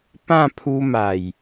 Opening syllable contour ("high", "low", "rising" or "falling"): falling